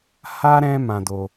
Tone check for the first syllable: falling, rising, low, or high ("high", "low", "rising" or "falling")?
high